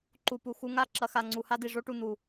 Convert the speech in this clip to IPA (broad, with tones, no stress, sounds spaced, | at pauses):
ǃ u˨ p u˨ x u˧ ŋ a˦˨ ǁ ɐ˧ x a˨ ŋ͡ǀ u˨ h a˦ d i˨ ʐ o˦ ʈ u˨ n̪ u˨